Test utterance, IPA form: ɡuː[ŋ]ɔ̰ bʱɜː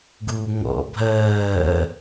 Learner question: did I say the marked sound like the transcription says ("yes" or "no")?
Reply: yes